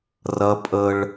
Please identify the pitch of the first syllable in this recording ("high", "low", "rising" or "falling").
high